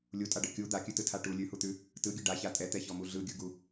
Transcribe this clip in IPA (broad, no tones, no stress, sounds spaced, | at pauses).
lʲ u tʼ a ɖ ɤ kʲ u d̪ a kʲ ʉ t ɯ tʰ a ʈ u lʲ ʉ h u t̪ ʉ | t ɯ ɡʲ ɯ ɖ a ç a tʼ ɛ t̪ ɛ ç ɔ m u ɮ ɯ ɡʲ ɯ ɡ u